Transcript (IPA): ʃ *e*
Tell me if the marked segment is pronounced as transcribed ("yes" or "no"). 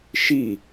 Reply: no